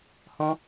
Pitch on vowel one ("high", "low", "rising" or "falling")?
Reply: high